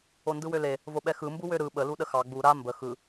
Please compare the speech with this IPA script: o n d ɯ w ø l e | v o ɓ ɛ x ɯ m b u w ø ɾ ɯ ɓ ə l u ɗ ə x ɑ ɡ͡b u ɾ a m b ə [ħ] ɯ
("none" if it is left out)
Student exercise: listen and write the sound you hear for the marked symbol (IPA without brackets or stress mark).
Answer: x